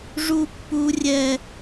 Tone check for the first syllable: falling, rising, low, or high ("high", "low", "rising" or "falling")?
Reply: high